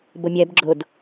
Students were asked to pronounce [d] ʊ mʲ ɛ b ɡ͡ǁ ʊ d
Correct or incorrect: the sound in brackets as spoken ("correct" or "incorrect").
incorrect